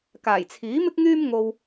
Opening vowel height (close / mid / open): open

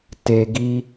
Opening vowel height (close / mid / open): mid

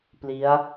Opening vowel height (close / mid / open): close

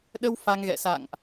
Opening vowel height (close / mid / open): mid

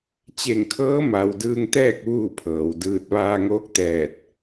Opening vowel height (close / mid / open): mid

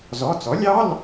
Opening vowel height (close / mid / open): mid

